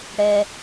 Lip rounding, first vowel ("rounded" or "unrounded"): unrounded